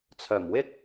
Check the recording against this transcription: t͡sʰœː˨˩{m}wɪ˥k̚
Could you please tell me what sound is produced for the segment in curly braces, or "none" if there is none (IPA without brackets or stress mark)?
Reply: m